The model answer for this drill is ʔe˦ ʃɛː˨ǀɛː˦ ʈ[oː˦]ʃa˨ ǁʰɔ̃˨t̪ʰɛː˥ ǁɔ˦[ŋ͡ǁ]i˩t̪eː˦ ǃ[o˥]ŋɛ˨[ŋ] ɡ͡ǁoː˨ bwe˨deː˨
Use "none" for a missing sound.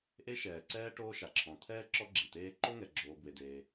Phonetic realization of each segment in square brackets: oː˦, ɡ͡ǁ, o˥, none

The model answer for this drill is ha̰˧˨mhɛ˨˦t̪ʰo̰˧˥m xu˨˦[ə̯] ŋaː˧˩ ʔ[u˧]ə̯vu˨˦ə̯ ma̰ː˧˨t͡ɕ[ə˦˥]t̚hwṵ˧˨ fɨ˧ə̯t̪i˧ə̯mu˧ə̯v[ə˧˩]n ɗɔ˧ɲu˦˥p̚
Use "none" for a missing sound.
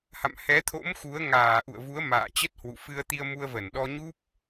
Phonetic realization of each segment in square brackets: ə̯, ṵ˧˨, ə˦˥, ə˧˩

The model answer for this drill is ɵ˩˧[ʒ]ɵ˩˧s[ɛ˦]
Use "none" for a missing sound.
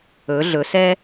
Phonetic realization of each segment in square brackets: ɮ, ɛ˦

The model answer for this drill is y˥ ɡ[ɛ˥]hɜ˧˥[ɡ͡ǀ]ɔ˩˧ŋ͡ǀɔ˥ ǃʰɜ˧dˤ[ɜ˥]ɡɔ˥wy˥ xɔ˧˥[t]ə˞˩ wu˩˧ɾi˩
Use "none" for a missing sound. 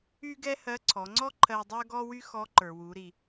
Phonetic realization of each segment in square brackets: ɛ˥, ǀʰ, ɜ˥, ǃ

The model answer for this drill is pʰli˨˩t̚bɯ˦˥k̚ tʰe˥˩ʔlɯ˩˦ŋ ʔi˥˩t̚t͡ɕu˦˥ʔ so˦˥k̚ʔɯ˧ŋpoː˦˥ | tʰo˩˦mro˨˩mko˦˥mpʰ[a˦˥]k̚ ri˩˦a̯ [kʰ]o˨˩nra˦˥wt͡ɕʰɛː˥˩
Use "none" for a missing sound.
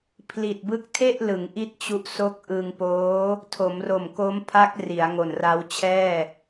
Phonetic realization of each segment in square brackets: a˦˥, ŋ

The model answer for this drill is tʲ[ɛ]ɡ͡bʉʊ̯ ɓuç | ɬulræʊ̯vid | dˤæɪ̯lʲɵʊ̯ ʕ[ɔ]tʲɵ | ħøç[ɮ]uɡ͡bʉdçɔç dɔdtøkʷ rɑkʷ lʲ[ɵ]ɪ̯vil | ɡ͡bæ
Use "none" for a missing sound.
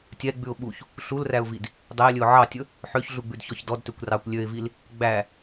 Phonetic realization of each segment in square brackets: ɛ, ɑ, ɮ, ø

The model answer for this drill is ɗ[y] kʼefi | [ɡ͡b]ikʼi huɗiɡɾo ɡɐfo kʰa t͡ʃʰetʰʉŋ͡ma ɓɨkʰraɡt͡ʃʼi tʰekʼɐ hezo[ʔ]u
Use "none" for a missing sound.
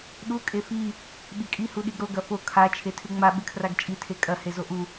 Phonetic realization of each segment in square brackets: u, ɓ, ʔ

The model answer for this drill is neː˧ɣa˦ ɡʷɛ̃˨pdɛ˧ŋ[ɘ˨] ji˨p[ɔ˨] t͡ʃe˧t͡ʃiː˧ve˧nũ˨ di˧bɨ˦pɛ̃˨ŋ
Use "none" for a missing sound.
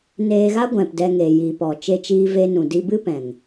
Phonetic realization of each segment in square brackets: e˨, ɔ˨

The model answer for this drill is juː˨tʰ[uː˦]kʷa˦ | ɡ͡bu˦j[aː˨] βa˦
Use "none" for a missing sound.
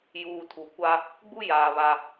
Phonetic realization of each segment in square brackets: uː˨, aː˨

